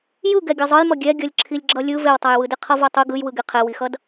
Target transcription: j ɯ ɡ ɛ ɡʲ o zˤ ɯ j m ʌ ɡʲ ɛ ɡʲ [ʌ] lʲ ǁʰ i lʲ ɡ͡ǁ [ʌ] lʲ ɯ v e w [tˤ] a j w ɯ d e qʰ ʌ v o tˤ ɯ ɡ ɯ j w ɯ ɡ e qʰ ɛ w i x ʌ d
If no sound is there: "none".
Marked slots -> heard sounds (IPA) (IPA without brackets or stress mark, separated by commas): ʌ, ʌ, tˤ